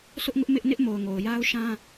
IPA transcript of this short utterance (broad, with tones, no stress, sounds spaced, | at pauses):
sʰ ʊ˦ ʔ ŋ ʊ˦ ʔ m ɪ˦ ʔ n ɪ˦ ʔ m o˨ ʊ̯ ŋ o˨ ʊ̯ j a˦ ʊ̯ ʃ ã˦